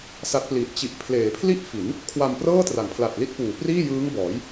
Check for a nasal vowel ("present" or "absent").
absent